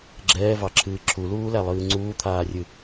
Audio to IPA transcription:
ɡ͡ǁ ɛː v ɑ ǁʰ ɨː ǁʰ u l uː l æ lˠ ɨː ŋ͡ǀ uː t̪ʰ aː rʲ ɨ

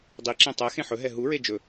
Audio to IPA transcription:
dˤ i ǁ ẽ tˤ ɛ x ẽ ħ ɵ ɦ ɛ ɦ u ɹ e d͡ʒ ɵ

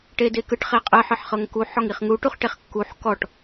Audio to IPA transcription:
ʈ e d e k ɯ ʈ χ e qʼ ɯ ħ ɯ ħ χ ɤ ŋ k u ħ ɔ ŋ i χ ŋ u ʈ u χ ʈ e χ kː u ħ k ɔ ʈ

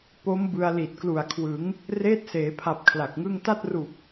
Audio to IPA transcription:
p o˦˥ m b ɯ˧ a̯ l i˨˩ t̚ k l u˨˩ a̯ kʰ w ɯ˩˦ ŋ | r eː˦˥ t̚ s eː˩˦ pʰ a˨˩ p̚ kʰ l a˨˩ k̚ ŋ ɯ˥˩ ŋ t a˥˩ t̚ r u˨˩ k̚

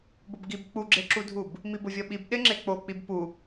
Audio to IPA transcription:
b ʊ b ɡ i b k͡p u ɡ͡ǁ e ǁ u dʱ u b | m i b ʊ vʲ ɔ ɓ i b ɗ ɪ ŋ͡ǁ e k͡p o k͡p i b p u

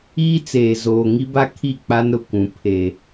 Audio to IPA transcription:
iː˦ t͡s eː˨ z oː˨ ŋ i˦ b a˦ kʰ i˦˨ k͡p a˦ n ɾ ʊ˨ kʷ ũ˨ pʰ e˨

